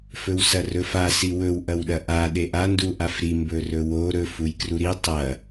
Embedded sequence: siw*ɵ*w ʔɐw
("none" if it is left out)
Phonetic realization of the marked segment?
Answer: ɵ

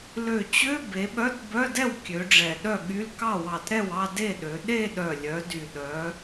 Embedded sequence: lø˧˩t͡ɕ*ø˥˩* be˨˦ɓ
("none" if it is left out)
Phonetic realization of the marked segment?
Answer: ø˧˥˧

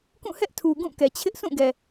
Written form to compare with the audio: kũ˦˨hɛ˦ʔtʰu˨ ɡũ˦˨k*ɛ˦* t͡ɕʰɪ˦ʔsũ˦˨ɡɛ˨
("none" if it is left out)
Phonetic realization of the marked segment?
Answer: ɛ˨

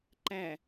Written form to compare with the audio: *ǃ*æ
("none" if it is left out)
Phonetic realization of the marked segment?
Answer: ǃ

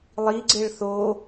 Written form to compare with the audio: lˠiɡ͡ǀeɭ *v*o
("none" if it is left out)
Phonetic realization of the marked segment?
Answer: θ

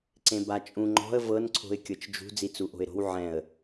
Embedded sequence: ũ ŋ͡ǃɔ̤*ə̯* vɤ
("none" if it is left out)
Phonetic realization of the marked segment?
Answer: ə̯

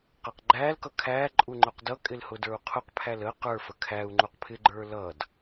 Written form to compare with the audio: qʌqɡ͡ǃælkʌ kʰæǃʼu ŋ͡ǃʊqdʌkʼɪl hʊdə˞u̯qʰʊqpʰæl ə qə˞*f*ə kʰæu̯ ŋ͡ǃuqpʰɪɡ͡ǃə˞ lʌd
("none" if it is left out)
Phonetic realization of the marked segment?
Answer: f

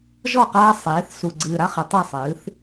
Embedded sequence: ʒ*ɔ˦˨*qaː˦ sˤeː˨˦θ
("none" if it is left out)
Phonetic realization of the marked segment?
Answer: ɔ˦˨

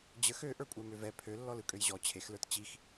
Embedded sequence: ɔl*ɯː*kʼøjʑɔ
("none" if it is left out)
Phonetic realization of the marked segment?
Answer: ɯ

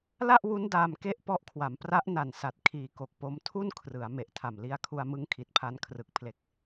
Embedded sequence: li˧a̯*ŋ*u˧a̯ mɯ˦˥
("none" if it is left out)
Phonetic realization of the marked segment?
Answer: kʰ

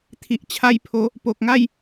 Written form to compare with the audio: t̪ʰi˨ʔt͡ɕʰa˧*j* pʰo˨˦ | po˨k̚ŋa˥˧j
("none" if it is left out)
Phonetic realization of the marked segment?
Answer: j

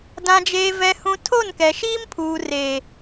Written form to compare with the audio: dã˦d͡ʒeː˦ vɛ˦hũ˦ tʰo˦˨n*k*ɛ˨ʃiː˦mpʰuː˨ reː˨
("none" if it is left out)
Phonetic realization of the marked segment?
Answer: k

